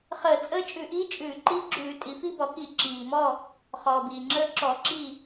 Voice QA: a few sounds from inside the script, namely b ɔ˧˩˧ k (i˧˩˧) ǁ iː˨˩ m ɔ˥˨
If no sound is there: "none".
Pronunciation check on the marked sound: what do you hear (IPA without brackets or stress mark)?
i˧˩˧